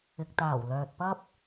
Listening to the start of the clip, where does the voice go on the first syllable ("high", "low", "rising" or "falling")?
low